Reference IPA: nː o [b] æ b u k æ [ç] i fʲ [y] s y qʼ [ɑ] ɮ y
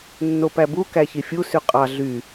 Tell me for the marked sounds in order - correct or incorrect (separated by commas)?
incorrect, correct, incorrect, correct